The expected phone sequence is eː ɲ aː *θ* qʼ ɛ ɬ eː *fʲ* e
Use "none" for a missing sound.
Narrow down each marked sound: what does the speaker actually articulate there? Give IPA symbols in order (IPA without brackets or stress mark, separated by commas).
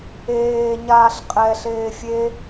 ɬ, fʲ